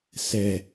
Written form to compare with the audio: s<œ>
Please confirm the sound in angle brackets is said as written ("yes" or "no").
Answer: no